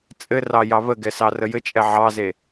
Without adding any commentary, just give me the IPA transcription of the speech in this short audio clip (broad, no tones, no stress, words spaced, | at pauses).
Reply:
t͡sʼɘrɑjɑ βəɡɛ sɑrəjɘt͡ʃʼɛ ʕɑze